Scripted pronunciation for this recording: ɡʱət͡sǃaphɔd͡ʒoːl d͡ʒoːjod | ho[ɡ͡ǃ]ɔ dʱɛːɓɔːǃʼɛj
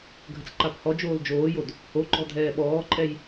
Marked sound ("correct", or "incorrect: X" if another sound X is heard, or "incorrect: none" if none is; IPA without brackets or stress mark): correct